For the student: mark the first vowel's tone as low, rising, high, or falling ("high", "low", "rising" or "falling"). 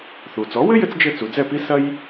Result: low